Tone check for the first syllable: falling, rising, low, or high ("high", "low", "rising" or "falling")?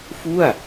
falling